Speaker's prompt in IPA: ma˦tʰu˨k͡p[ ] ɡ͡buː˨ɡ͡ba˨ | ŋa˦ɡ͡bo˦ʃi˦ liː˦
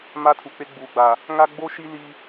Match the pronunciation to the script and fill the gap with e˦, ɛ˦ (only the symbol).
e˦